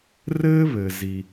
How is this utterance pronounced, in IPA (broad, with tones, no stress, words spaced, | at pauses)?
rɘː˥βɘː˩ zi˩